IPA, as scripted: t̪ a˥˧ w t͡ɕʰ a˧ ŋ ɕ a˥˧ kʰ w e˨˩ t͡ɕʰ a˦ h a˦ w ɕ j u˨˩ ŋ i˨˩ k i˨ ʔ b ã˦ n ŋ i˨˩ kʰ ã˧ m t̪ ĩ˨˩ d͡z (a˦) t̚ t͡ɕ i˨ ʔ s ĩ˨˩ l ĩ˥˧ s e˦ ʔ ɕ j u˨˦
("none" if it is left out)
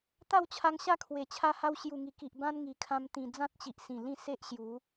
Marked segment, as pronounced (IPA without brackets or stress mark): ã˦